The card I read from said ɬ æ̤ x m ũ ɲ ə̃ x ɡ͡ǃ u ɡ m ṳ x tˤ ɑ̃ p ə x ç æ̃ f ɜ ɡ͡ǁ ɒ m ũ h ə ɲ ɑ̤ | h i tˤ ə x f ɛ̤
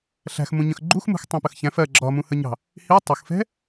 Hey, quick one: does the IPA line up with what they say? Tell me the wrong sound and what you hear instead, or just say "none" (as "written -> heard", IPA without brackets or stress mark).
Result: ɡ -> x